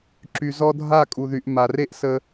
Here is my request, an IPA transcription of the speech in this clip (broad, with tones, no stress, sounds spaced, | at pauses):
ǁ y˨ z ɔ˦ dʱ a˦˨ kʼ u˨ ð y˨ ʔ m a˨ r e˦ ʔ s ə˧